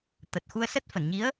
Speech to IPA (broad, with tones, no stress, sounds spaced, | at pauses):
t̪ ə˨˩ t̚ x u˧ ə̯ s ə˦˥ t̚ f ə˧˩ n ɲ i˨˦ ə̯